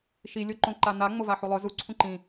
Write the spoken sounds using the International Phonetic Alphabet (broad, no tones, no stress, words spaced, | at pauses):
ʃi lʲoǃõǃana ŋ͡movaħulˠœ zu ǀʰũǃĩ